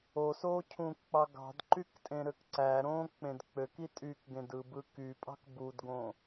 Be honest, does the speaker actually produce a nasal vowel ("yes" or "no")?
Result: yes